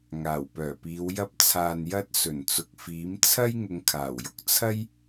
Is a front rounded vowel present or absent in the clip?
present